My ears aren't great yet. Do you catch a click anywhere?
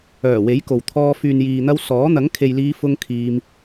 no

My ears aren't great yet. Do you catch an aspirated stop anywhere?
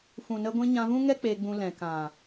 no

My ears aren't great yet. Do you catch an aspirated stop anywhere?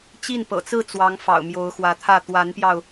yes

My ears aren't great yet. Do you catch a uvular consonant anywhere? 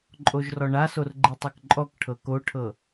no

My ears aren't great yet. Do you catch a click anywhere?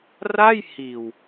no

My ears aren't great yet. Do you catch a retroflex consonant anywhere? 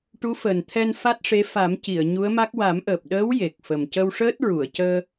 yes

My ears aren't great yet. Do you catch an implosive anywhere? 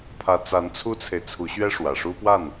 no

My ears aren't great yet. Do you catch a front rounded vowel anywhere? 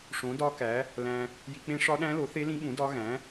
no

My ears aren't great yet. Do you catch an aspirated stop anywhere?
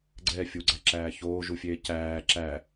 no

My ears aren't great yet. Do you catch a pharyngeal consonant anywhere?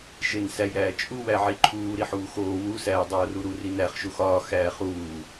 yes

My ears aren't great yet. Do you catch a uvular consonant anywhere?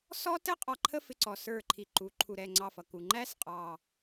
yes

